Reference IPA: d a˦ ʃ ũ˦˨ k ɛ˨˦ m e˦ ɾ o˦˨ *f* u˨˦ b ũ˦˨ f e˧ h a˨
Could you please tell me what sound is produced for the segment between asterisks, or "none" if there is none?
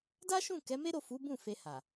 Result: f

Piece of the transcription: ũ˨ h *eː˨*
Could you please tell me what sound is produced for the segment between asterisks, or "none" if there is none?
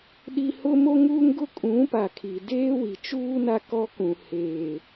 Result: eː˨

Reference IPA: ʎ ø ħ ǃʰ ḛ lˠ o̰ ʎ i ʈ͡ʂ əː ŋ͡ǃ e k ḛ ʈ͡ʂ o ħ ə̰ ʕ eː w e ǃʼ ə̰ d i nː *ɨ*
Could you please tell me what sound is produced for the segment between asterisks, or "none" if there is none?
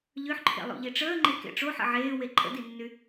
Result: y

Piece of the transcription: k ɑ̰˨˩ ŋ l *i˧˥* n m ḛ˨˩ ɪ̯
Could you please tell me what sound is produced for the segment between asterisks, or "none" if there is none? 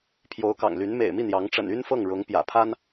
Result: y˧˥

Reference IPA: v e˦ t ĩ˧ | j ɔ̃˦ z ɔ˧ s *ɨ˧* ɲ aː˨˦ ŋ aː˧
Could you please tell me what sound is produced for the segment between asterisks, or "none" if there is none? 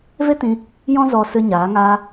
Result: ɨ˧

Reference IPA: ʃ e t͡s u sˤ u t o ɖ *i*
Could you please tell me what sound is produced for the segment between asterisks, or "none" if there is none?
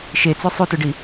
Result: i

